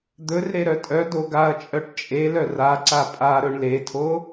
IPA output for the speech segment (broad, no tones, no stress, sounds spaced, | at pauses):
d̪ ɵ r ɾ e ɾ œ tʼ œ d o ɡ a ɐ̯ t͡ʃʼ œ ʈ t͡ʃʼ e l œ r a ǀ a pʼ a ɾ ɵ ɳ l e tʰ o